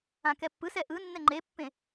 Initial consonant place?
velar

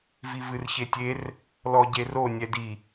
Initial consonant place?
labial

